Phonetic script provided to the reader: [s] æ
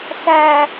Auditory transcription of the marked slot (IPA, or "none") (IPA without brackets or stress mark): s